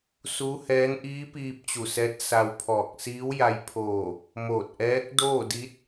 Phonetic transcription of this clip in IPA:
s u˧˥ h ɛː˧˥ n ʔ iː˧˥ p iː˧ p̚ t͡ɕ u˧˩ s ɛː˧˥ t̚ s a˧ w pʰ ɔː˧˩ k̚ s iː˧˥ w j a˧ j pʰ oː˧˩ | m oː˧˩ t̚ ʔ ɛː˧˥ k̚ d oː˥˨ d i˧˥ t̚

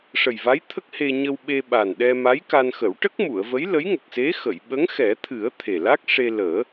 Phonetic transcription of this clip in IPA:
ʂ ə˨˩ j v a˧˥ j t̪ʰ ə˦˥ k̚ h e˧ ɲ ə˧ w ɓ e˧ ɓ a˨˩ n ɗ ɛ˧ m a˧˥ j k a˧ n x ə˨˩˦ w ʈ ə˦˥ k̚ m u˨˩˨ ə̯ v ə˧˥ j l ə˧˥ j ŋ ə˨˩ k̚ s e˧˥ x ə˨˩˨ j ɓ ə˧˥ ŋ x ɛ˨˩˦ t̪ʰ ɨ˨˩˦ ə̯ t̪ʰ e˨˩ l a˦˥ k̚ ʂ e˧ l əː˨˩˦

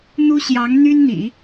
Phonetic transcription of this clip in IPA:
n̪ u˥ ɕ j ɑ˧˥ ŋ n̪ y˥ n n̪ ḭ˨˩˦

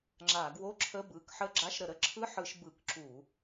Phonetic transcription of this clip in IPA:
ŋ͡ǁ a˧˩˧ ɡ w o˧˥˧ ǁʰ ə˧˥˧ b ɯ˩˧˩ k ħ ə˧˥˧ ɡ͡ǁ a˧˥˧ ʃ ɾ ə˧˩˧ ɾ ə˧˥˧ ǁʰ ɯ˧˥˧ ħ ɯ˧˩˧ ʃ b ɯ˧˩˧ k ǁ u˧˩˧

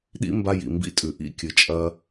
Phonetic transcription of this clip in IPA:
ɗ ḭ˦ m b a˧ j ḭ˨ m b ḭ˦ tʼ ʉ˨ ʔ ḭ˦ kʲ ɨ˨ t͡ʃʼ ɐ˦

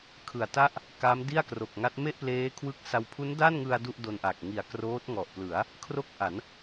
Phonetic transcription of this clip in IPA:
kʰ ɯ˨˩ a̯ t a˥˩ ʔ | k a˦˥ m d i˥˩ a̯ k r o˨˩ k̚ ŋ a˦˥ t̚ m e˥˩ ʔ p l eː˦˥ kʰ w ɯ˦˥ k̚ s a˧ w pʰ u˦˥ n d a˥˩ n ŋ ɯ˧ a̯ d u˥˩ ʔ d o˧ n ʔ a˨˩ k̚ ŋ i˨˩ a̯ k r oː˦˥ t̚ ŋ ɔ˨˩ ʔ p l ɯ˩˦ a̯ | kʰ r o˥˩ k̚ ʔ a˩˦ n

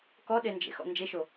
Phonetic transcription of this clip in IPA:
k ɔ ɗ e n d͡ʒ ḛ x ɔ̰ n d͡ʒ e ʃ o

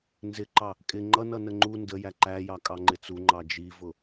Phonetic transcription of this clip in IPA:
n z ɪ ǃ ɑ | kʼ ɪ ŋ͡ǃ ʌ n ʌ n ə ŋ͡ǃ u n d ə j æ ǃ æ j ɑ kʼ ɑ ŋ͡ǃ ɪ t͡s u ŋ͡ǃ ɑ d͡ʒ i v ʊ

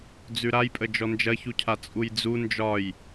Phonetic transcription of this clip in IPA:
d͡z ʉ ɾ a j pʼ ə d͡ʒ ɔ n d͡ʒ ɐ ç u cʰ a t͡sʼ u j d͡z u n d͡ʒ ɒ j

